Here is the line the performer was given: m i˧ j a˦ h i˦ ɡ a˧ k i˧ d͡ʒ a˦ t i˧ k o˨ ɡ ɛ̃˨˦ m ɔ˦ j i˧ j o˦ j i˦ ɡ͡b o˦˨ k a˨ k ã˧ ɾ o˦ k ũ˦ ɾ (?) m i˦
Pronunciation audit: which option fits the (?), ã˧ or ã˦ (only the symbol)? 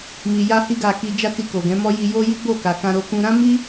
ã˦